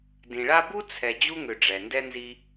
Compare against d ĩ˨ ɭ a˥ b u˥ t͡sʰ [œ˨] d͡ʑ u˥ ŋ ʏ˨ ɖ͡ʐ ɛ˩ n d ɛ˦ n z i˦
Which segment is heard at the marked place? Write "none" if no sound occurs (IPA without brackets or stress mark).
ɛ˨